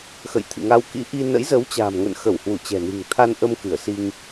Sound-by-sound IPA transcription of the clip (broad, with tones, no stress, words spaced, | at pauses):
xə̰˧˨j t̪ʰɨ̰˧˨ŋa˧wkḭ˧˥ ʔi˧ nə̰˧˥jzə˨˦wt͡ɕa̤ː˨˩mŋə̰˧˨n xə˧˩whwu˧˩ t͡ɕɛ̤˨˩ni̤˨˩ŋt̪ʰa˧nʔə˧m kɨ˧˩ə̯si˧ŋ